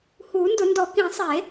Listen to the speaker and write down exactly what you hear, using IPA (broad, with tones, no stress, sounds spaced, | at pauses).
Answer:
h uː˨˩˦ n d ʊ˨˩˦ n d ɔ˨˩˦ k ĩ˨˩˦ sˤ e˨˩˦